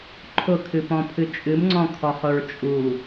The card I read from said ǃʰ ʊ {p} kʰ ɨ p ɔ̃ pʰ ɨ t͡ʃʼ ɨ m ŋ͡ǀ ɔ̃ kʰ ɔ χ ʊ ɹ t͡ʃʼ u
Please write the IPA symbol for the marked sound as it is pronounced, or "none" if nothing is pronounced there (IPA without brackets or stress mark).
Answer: none